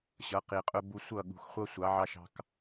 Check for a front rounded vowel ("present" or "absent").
absent